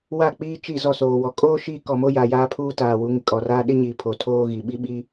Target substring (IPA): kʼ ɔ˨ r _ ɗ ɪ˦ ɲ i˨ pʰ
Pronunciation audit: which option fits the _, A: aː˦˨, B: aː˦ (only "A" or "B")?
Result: B